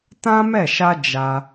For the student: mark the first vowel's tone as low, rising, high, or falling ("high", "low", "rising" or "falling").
high